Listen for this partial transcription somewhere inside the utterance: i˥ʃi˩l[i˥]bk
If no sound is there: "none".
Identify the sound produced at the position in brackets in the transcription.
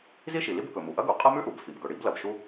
i˥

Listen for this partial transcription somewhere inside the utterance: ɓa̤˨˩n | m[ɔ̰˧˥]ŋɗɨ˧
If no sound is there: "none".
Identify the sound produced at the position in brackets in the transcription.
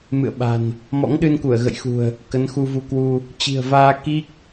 ɔ̰˧˥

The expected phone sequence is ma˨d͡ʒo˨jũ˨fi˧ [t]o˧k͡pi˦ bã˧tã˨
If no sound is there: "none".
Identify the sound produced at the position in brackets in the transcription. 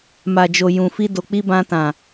d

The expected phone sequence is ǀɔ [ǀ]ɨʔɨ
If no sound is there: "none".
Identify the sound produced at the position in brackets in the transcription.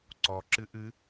ǁ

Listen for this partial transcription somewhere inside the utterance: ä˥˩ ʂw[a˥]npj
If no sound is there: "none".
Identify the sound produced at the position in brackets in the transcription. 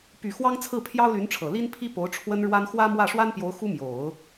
a˥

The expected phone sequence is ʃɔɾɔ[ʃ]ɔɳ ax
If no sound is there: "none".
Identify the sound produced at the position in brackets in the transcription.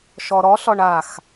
ɬ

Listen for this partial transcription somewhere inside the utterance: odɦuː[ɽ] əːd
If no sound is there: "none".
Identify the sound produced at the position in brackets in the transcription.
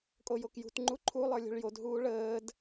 ɭ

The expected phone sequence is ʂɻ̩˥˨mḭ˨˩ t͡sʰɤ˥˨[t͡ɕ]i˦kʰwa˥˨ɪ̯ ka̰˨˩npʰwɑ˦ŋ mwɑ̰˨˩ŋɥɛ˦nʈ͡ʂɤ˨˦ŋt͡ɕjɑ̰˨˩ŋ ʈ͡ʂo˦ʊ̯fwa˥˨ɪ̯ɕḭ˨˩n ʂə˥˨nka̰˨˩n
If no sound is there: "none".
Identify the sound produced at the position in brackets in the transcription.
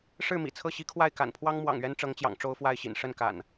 ɕ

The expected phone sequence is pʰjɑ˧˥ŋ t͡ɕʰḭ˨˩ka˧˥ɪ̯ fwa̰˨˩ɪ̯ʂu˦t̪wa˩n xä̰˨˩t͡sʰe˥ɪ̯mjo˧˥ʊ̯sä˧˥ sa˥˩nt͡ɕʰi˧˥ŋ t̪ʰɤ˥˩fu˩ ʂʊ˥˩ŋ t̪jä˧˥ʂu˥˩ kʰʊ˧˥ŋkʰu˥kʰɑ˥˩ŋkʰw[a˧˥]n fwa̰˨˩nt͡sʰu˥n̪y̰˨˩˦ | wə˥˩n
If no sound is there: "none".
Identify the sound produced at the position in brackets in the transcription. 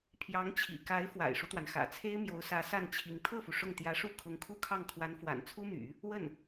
a˧˥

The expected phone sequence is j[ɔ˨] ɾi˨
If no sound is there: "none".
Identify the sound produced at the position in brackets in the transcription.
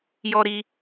ɔ˨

